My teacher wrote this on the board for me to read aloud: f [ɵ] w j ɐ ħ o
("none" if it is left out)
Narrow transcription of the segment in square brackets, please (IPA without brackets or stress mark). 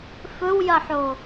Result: ɵ